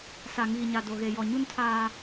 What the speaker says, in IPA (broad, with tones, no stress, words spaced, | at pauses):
sa˨ŋiː˨ɲa˨ do˨ɣe˨jɔ˨ ɲu˦ntʰaː˦